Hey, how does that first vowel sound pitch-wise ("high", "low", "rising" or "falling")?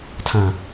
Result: low